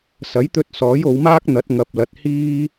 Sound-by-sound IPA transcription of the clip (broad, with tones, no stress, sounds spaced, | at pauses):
s ɐ˨˥ j t̪ ɵ˧ t̚ s ɔː˨˥ j o˨˧ w m aː˥ k̚ n̪ ɐ˨˥ t̚ ŋ ɐ˨ p̚ l ɐ˨ t̚ h iː˥